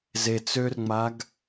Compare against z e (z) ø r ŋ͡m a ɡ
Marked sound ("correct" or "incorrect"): incorrect